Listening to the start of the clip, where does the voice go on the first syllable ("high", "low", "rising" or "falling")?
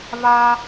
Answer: high